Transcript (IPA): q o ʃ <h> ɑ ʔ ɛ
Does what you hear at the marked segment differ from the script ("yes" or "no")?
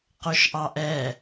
yes